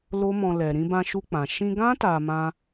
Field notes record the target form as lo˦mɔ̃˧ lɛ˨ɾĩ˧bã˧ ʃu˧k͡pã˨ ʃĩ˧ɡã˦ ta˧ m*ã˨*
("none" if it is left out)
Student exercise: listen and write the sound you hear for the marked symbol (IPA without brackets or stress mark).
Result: ã˧